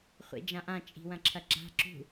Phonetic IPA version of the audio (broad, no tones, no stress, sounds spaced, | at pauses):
χʷ ḭ d͡ʒ ã ʔ ã t͡ʃʼ i̤ w ɐ̃ ǁʰ ɐ ɡ͡ǁ a̤ ǁ ṳ